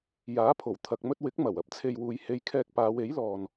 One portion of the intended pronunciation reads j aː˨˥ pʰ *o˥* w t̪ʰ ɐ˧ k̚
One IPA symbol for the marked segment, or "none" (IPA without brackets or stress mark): o˨˩